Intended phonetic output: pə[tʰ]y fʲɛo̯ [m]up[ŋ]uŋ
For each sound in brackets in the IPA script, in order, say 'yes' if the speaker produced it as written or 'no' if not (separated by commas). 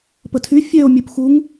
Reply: yes, no, no